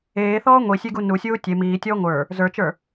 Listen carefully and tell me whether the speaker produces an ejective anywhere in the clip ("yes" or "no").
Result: no